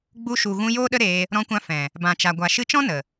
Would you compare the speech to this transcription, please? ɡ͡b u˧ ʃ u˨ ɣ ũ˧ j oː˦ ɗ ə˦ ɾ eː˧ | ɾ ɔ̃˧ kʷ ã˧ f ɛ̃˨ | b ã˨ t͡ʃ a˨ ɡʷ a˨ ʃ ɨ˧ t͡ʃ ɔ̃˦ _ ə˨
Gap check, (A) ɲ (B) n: B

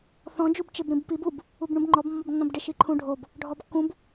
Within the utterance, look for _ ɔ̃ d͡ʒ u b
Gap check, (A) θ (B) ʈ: A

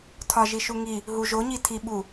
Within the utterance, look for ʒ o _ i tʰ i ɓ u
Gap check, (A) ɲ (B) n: A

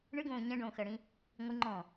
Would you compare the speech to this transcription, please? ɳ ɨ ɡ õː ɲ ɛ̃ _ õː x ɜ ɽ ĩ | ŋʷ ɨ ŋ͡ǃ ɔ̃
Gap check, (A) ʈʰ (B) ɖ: B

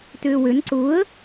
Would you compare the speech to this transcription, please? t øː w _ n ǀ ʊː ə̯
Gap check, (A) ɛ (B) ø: B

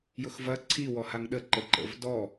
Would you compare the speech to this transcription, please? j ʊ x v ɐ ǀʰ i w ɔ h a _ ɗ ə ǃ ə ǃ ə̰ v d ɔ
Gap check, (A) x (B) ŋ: B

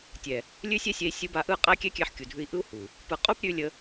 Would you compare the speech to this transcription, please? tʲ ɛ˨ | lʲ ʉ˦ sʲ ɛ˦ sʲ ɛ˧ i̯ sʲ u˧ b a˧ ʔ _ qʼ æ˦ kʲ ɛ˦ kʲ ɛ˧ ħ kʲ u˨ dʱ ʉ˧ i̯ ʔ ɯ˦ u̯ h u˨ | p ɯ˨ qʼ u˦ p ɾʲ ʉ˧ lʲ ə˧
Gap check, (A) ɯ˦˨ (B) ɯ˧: A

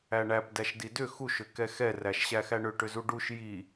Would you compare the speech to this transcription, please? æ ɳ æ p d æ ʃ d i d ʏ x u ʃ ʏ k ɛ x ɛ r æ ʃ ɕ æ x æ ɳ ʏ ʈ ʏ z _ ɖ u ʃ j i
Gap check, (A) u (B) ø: A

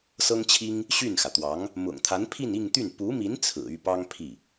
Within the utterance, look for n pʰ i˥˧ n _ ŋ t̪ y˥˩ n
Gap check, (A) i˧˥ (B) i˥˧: B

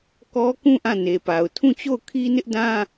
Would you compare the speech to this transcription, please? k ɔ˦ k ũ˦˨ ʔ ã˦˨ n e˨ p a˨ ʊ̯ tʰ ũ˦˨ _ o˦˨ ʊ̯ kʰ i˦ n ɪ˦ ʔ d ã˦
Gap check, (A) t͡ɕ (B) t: A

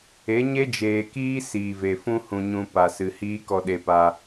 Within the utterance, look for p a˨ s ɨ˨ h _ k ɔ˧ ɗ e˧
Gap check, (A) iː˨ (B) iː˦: B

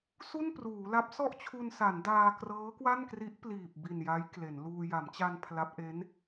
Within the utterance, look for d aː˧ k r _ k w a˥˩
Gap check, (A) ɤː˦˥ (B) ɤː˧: A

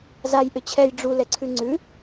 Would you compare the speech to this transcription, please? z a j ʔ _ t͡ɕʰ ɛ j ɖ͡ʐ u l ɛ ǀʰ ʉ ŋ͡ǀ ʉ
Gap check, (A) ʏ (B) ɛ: A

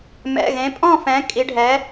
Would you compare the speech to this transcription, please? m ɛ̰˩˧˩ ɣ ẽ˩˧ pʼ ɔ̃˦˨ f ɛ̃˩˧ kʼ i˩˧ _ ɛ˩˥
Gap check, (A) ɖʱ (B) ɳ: A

